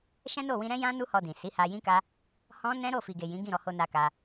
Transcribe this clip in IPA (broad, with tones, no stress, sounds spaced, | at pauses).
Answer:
ʃ ɛ̃˦ n o˦˨ w ĩ˧ ɾ ɛ̃˦ j ã˦ n u˦ h ɔ˧ d ĩ˨ s i˨˦ h a˧ j ĩ˦ k a˦ | h ɔ̃˦ n ɛ̃˦ ɾ o˦˨ f i˨ ɡ e˨ j ĩ˨˦ ɡ ĩ˦˨ ɾ ɔ˧ h o˧ n a˧ k a˧